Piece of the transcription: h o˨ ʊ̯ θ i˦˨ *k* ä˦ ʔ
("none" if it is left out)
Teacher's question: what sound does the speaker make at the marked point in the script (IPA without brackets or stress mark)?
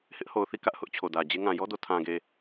k